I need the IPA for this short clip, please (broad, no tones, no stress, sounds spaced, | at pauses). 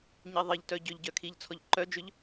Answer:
ɲ i ðˤ ɘ ʎ t œ ɟ ʏ ʎ ɟ œ kʰ i ʎ t͡sʰ ɔ ʎ ǃ œ d͡ʒ ʏ ʎ